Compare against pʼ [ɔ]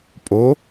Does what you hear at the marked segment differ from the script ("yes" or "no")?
yes